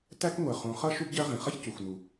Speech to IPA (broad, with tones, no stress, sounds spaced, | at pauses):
t æ˥ k ŋʷ ɜ˩ χ ũ˩ χ ʌ˥ ʃ u˥ b ɟ ɜ˥ ʁ ĩ˩ χ ʌ˥ ç c u˩ xʷ n u˩